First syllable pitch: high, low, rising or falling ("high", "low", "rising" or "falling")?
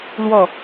falling